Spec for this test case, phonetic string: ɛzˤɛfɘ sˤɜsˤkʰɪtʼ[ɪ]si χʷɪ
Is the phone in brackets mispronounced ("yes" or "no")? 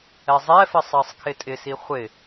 no